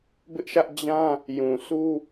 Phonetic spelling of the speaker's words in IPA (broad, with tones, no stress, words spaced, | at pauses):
bɪ˦ʔʃä˦ʔ d͡ʑã˦ | jũ˨sʰu˦